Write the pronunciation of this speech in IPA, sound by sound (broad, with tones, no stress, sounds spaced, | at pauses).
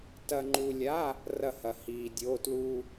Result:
t ɐ˧ ŋ͡ǃ u˧ lʲ a˧˥˧ | r ɐ˥˨ h ɐ˧ h iː˧ dʲ oː˧˥˧ t l u˥